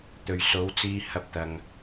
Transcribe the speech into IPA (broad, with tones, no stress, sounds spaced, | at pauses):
t̪ ɵ˨ ɥ s o˨˧ w t͡s iː˧ h ɐ˧ p̚ t̪ ɐ˨ ŋ